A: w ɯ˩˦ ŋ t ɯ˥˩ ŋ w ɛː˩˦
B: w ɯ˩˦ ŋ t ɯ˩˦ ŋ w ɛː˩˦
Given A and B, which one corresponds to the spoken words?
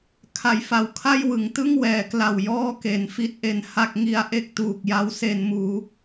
A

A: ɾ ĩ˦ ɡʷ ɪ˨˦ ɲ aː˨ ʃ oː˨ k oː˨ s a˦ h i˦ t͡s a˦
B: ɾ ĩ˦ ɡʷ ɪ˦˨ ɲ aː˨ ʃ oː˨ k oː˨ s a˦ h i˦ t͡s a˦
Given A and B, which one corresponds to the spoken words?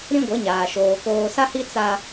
A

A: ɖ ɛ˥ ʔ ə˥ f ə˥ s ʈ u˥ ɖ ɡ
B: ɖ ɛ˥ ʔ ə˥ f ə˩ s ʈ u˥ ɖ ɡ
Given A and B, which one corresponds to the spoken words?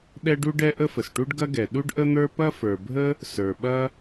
B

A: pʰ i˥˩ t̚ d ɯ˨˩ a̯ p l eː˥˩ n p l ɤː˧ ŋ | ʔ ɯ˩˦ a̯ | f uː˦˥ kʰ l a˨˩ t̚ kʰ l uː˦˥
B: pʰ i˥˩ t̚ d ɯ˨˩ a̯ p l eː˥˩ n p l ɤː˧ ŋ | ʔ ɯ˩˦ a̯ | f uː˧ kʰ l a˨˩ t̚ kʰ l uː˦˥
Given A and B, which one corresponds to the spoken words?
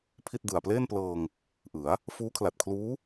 A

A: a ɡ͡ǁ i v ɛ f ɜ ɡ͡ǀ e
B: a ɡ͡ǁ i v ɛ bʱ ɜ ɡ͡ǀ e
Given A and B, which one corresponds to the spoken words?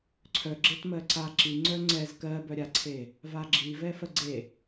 A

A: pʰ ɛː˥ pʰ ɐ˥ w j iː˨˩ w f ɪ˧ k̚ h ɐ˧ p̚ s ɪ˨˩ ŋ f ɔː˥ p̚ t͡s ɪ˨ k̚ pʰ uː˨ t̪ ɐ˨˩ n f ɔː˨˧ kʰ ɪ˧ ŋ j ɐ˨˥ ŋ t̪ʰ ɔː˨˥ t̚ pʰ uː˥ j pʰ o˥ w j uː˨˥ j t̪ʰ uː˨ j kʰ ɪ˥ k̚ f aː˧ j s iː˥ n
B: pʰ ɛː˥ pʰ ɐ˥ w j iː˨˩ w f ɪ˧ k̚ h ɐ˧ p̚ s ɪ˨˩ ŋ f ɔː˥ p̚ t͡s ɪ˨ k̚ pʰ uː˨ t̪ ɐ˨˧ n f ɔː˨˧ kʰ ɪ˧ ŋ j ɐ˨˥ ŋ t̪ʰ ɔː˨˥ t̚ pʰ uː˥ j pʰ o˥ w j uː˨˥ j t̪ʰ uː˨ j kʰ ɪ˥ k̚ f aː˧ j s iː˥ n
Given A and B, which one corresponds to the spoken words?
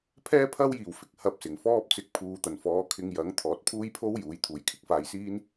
A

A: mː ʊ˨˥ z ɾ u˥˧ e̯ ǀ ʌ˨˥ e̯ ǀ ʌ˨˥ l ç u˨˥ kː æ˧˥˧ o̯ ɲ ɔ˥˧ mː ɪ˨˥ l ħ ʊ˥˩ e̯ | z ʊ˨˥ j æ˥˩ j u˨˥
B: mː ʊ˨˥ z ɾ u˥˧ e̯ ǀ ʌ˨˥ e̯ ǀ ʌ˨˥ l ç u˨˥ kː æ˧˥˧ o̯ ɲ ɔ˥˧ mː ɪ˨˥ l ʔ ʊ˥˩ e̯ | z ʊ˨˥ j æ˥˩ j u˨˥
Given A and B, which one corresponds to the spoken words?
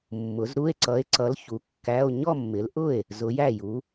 B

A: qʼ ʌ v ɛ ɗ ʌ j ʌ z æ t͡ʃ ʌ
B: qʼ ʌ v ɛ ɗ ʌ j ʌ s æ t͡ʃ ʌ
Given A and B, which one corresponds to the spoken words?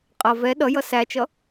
B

